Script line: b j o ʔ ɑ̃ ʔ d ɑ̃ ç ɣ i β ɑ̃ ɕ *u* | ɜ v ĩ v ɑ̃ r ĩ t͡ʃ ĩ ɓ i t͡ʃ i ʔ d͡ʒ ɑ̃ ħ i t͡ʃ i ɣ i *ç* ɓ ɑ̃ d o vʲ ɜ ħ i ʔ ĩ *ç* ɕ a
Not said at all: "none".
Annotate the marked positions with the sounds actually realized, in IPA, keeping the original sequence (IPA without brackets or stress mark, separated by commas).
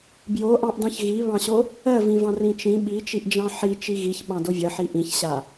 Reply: o, ç, ç